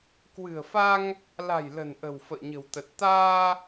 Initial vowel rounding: unrounded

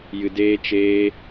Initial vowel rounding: unrounded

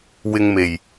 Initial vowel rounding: unrounded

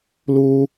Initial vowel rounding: rounded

